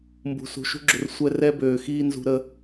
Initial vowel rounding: rounded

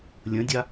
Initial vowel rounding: unrounded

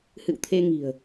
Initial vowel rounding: unrounded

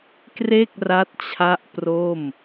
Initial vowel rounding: unrounded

